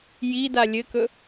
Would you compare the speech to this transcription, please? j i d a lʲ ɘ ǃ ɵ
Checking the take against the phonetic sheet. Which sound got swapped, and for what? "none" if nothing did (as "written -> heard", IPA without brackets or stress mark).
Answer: ǃ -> k